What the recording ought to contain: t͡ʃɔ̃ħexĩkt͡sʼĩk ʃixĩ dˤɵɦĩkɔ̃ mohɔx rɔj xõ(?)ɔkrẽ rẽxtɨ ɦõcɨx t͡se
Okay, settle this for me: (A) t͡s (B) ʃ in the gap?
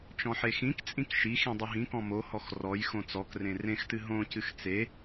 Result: A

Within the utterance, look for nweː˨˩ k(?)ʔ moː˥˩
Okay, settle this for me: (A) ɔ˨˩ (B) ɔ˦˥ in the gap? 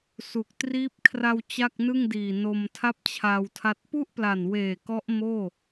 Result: B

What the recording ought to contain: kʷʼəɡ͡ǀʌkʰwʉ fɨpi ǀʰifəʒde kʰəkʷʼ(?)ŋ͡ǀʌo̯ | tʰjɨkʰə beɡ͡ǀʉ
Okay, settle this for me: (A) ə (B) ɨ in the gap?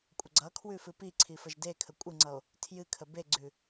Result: B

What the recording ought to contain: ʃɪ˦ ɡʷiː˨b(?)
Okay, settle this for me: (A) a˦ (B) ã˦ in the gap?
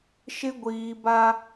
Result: A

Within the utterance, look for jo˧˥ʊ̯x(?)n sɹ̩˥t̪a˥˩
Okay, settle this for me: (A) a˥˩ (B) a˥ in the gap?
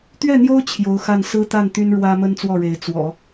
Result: A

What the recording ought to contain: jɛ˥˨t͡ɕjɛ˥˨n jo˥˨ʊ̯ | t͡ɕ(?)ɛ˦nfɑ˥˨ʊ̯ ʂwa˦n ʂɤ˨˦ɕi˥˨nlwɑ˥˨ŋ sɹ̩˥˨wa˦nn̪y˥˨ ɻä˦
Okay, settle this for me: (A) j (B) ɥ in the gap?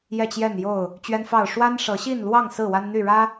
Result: B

